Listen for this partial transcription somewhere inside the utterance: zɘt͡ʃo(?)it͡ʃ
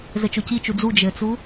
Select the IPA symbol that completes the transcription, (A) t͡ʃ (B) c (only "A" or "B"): B